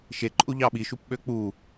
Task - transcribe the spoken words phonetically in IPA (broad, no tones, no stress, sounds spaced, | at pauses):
ʃ e ǃʼ u ʎ ɑ ɓ i ʃ u p ɓ ø k͡p u